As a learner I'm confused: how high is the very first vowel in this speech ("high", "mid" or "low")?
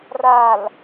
low